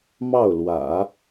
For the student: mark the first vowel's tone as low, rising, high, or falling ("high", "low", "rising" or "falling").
falling